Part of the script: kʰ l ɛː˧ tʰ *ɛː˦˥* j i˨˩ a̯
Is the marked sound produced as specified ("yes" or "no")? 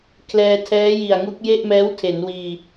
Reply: yes